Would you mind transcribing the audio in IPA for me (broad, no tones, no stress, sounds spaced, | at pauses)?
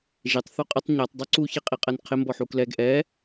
ʒ ɪ tˤ θ u qʼ ɪ tˤ ɲ ɛ tˤ dˤ u ǀ u ç i qʼ i qʼ ɛ n qʰ ɪ m b ɔ ħ u k l ɛ ɡ ʔ ɛ